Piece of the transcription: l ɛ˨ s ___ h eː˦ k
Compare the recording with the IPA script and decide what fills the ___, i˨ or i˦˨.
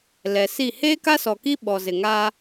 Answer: i˦˨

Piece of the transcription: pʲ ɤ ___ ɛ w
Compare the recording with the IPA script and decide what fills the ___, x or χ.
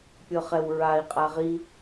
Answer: χ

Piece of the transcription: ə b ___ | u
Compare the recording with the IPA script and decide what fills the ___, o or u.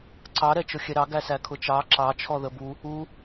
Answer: u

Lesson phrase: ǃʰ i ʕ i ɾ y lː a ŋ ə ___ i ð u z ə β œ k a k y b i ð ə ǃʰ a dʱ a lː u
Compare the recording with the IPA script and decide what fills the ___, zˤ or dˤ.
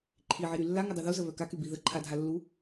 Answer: dˤ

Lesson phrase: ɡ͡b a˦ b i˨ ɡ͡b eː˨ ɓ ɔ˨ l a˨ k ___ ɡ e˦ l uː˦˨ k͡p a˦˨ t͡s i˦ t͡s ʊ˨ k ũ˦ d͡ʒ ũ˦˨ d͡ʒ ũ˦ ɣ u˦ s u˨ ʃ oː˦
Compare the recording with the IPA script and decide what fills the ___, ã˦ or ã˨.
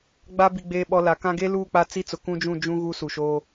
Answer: ã˦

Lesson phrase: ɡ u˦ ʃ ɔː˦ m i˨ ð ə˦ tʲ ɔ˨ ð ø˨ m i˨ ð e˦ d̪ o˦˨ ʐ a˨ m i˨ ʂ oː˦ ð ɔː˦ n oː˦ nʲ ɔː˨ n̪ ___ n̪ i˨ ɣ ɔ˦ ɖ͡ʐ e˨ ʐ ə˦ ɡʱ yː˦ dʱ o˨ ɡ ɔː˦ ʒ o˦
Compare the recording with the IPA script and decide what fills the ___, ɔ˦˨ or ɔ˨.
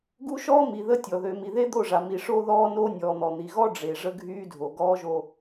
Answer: ɔ˨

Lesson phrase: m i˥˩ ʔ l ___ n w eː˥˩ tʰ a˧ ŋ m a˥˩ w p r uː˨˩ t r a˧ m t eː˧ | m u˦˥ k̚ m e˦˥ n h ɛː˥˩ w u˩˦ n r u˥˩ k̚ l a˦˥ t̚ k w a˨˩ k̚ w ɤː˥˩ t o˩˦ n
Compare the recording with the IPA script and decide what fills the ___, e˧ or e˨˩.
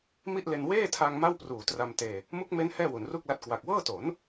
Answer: e˧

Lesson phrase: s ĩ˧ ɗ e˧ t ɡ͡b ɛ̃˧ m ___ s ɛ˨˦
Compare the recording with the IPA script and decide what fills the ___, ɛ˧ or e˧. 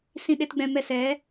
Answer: ɛ˧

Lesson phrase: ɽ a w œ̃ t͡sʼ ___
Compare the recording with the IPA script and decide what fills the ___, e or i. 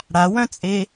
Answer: e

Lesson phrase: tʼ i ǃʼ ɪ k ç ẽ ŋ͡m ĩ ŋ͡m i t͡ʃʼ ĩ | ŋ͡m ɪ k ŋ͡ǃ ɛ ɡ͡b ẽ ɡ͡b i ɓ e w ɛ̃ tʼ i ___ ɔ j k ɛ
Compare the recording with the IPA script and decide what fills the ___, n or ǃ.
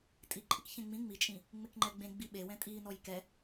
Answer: n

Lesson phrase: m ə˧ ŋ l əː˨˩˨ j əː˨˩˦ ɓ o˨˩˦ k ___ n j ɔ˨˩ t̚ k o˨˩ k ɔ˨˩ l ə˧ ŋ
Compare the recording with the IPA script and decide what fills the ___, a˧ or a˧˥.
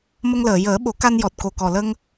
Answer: a˧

